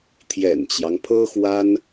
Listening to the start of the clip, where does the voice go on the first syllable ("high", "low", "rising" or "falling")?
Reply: low